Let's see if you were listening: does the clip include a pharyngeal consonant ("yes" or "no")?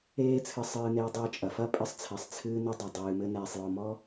no